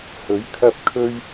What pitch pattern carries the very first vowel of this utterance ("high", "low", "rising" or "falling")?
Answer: rising